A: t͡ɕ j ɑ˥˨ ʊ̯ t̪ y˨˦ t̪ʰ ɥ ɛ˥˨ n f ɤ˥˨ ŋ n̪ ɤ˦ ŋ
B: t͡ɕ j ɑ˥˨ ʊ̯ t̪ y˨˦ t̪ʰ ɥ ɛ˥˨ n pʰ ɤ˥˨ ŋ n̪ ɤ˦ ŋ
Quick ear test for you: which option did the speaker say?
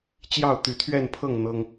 B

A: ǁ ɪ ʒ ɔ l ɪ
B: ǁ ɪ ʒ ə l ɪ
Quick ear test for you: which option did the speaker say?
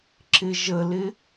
B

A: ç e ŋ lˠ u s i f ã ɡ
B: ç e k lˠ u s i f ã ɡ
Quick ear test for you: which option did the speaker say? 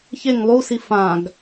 A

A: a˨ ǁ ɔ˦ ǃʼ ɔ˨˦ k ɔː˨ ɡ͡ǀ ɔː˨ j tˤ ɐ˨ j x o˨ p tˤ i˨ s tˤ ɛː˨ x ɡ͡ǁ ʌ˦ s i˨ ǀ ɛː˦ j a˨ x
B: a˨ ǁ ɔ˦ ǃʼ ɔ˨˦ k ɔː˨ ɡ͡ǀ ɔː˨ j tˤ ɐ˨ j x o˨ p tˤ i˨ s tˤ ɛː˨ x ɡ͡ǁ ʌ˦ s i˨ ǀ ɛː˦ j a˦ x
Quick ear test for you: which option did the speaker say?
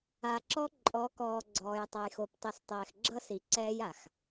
A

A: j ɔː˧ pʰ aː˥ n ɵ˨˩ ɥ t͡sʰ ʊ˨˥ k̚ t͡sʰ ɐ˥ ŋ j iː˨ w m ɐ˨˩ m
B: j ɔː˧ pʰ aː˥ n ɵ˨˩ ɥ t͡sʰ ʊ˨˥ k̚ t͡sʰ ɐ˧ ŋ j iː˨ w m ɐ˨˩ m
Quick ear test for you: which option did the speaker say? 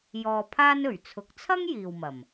A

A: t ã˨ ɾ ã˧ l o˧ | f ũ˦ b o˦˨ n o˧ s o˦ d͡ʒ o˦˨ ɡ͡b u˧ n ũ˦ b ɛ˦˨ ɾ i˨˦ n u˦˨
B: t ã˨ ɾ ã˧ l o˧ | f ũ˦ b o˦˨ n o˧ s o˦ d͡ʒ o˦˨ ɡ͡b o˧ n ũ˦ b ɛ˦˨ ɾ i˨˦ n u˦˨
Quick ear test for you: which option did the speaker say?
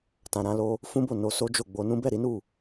B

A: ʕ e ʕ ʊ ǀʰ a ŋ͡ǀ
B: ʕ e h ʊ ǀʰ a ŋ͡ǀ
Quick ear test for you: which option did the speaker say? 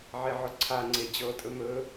A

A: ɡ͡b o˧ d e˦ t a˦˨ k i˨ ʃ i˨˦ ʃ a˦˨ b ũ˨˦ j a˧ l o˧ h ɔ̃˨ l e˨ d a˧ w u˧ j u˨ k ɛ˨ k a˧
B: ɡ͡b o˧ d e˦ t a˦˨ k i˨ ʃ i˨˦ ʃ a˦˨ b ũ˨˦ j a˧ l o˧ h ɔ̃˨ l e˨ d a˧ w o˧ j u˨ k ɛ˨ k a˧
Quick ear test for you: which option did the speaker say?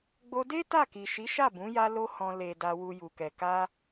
A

